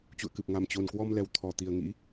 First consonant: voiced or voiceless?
voiceless